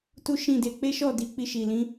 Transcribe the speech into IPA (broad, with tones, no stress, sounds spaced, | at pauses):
t u˦ ʃ ĩ˦˨ d e˧ k͡p e˦ ʃ ɔ˦˨ d i˨˦ k͡p i˧ ʃ i˨ l ĩ˨˦